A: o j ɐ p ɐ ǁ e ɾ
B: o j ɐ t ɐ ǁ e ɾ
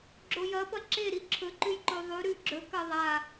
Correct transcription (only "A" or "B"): A